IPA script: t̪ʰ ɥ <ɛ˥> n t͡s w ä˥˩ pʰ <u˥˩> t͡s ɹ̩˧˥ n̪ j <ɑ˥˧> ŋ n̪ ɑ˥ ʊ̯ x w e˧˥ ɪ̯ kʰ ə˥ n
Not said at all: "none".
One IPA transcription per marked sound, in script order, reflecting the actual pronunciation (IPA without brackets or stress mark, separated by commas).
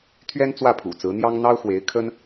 ɛ˥, ṵ˨˩, ɑ˥